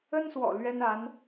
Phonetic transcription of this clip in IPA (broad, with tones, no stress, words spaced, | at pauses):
ə˥nswɔ̰˨˩ lɥɛ˥na˧˥n